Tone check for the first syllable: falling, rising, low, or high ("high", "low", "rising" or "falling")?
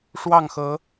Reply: falling